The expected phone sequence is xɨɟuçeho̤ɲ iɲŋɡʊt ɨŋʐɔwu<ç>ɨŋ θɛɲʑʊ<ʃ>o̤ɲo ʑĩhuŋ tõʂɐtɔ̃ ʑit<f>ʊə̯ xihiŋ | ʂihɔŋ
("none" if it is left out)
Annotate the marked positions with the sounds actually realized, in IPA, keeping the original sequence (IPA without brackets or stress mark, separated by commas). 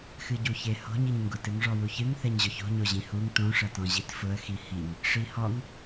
ç, ç, f